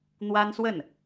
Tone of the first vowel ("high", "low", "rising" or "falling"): high